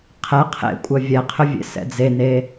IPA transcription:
qʰ ɛ qʰ ḛ kʷʼ œ vʲ ɛ qʰ ʏ vʲ ḛ s ɛ̰ d͡z e n e

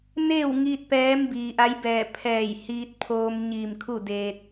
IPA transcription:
n eː˥˨ w ŋ iː˧ t̚ p ɛː˧˥ m b iː˩ ʔ a˧˥ j b ɛː˧˩ pʰ ɛː˧˩ j h iː˧ t̚ pʰ oː˧ m ɲ iː˧˩ m kʰ u˥˨ d eː˧ t̚

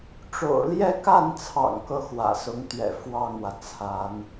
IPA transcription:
ʈ͡ʂ o̰˨˩ ʊ̯ l j ɛ˥˧ k a˥˩ n t͡sʰ ɑ̰˨˩ ŋ k ɤ˥˩ x w ä̰˨˩ s ʊ˧˥ ŋ t̪ ɥ ɛ̰˨˩ f w ɑ˥˩ ŋ w ä˩ t͡sʰ a˧˥ n

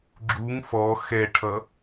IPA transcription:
ɡ͡ǁ u ŋ f ɔ x ɛ ʈʰ ʌ

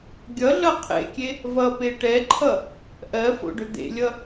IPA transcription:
ɡʲ ʌ ɮ ʌ qʰ ḛ kʲ e | v ʌ p e ʈ ɛ ǃʰ ʌ | ʔ ɜ f o̰ ɖ ʏ d̪ ḛ lʲ ʌ

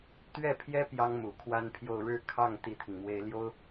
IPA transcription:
t̪ ɥ ɛ˥˩ pʰ j ɛ˥ p j ɑ˥ ŋ m u˨˩ kʰ w a˥ n pʰ j o˥˧ ʊ̯ ɻ ɻ̩˥˧ kʰ ɑ˥˩ ŋ t̪ i˥ t̪ʰ i˨ ŋ m w e˥ ɪ̯ l j o˥ ʊ̯

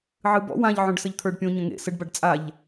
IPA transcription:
ʕ ɨ b ɔ̰ w ã ʎ ʕ õ ɖ s ə ʎ t̪ʰ ə˞ ɖ pʲ õ ɲ ə̃ ŋ ḛ s ə ɖ b a ɖ t͡sʼ a ʎ

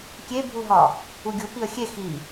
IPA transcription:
kʲ e bʱ u ɦ ɒ | u ɡʲ u p i ə̯ xʲ e x i

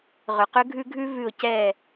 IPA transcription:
ʁ ʏ˨ q ʏ˦ ɡʱ ʉ˦ ɡʱ ʉ˦ v ʉ˨ ʊ̯ c ɛ˨

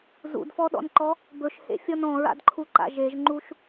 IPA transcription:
z ṵ d f ɔ ɗ ɔ̰ n ǃ ɔ | b ɵ ʃ h ḛ fʲ ɔ n ɔ̃ ɹ a̰ d ǃʰ u ǃ a̰ ʒ e ʒ ŋ͡ǃ u ʃ

